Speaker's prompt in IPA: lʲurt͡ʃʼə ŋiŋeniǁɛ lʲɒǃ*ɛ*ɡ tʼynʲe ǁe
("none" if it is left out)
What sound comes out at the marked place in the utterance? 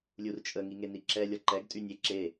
ɛ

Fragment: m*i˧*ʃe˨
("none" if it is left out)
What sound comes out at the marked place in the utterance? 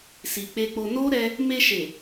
e˧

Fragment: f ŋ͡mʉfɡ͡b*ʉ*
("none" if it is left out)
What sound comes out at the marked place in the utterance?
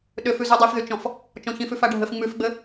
ɘ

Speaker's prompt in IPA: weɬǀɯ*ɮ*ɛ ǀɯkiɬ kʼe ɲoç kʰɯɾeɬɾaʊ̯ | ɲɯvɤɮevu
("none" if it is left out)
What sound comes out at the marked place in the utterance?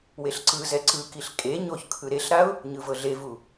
z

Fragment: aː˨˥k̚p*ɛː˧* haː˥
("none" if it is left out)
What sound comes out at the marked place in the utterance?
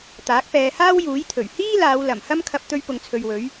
ɛː˧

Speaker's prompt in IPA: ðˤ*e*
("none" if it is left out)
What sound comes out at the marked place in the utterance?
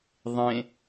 ẽ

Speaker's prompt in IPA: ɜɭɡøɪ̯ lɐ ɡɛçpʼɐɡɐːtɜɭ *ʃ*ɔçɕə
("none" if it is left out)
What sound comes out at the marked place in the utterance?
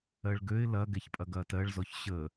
z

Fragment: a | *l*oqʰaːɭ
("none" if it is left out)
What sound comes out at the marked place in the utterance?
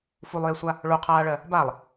ɭ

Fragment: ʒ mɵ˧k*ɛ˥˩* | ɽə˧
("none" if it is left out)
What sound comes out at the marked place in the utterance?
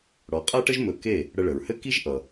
e˥˩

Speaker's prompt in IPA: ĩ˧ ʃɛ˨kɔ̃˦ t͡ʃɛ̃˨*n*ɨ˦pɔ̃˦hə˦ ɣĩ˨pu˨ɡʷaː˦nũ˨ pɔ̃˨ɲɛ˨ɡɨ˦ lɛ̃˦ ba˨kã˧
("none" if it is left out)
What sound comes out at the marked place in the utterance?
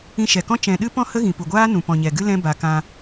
ɗ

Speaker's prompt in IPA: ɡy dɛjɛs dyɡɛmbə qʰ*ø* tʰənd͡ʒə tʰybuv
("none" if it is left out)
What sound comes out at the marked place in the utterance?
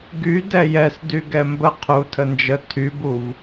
u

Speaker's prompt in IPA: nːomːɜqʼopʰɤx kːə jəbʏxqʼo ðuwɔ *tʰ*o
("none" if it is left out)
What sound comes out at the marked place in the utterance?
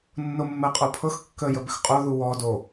d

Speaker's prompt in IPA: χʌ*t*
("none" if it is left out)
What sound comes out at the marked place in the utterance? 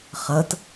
t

